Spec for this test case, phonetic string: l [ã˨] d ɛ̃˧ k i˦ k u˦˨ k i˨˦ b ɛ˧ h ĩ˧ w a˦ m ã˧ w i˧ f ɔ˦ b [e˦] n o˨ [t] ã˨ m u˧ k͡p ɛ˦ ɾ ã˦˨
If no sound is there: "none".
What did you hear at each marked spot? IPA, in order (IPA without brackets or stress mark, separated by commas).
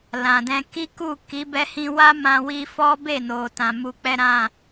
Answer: ã˨, e˦˨, t